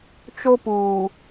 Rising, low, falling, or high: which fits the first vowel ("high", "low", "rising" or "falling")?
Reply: high